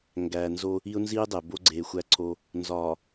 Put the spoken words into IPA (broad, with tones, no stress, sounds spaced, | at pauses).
ŋ ɡ æ˨ n z o˦ | i˦ ʊ̯ n z iː˦ dˤ e˨ b o˦ ɡ͡ǀ eː˨ xʷ æ˦ ǀʰ o˦ | n z ɒː˨